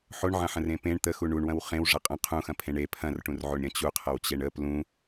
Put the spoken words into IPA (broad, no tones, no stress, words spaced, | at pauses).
ħoɳʕɐ̃ħə̃rẽ pẽɳ t̪əxu ɳuɳwɐ̃w χẽwʐɐ qʼə̃ qʰũxɐ̃pʰẽɳ e pʰɐ̃rʈũrʕoɳɾʲɐ̃ t͡ɕuqʰɐwt͡ɕeɳ ə plũ